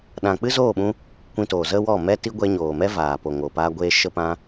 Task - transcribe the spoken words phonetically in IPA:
ɗã˨k͡pɨ˦zoː˦˨ɓũ˧ | kʷĩ˧toː˨zə˦wɔ˦˨ mɛ˦ti˦ɡʷɛ˧ ɲoː˨mɛ˦vaː˨ po˨ŋo˨pa˧ɡʷeː˧ ʃə˧pã˧

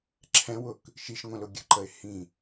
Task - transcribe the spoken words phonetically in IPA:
ǁʰɛ̃wʊk | ʃiʃŋʷə̃lʊ ɡʲə̤ǃəɪ̯ hĩ

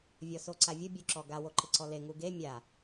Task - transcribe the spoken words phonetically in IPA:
vʲɔsoǀavʲʊ bʲuǁɔɡa woǃɪǀɔle ŋuɡe mʲa

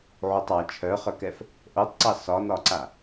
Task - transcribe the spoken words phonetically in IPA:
ʕutˤɑ t͡ʃʰœχœkɛf | ʔotˤǀɑ sɒnɒǀa

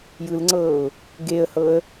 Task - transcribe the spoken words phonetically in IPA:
jɯlŋ͡ǀɤːʊ̯ | ɡeə̯hɤə̯

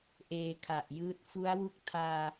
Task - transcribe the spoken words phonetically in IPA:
ʔeː˧kʰa˨˩ʔjɯː˦˥t̚ fu˦˥a̯wu˥˩k̚ tʰaː˧

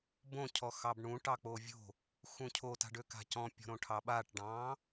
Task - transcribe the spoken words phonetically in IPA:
bõcʰɔ xɑbɳũʈɑ k͡povʲo̤ | xũcʰo ta̤ɖøka̤cɔ̃ pʲɔ̤ɾõʈʰɑɓaʈ ɖɑ̃

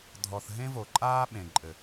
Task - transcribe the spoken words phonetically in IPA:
dʱɔ˧θ ɦẽ˦vo˨ǃʼaː˦ ɓẽ˨ǃʼɘ˨

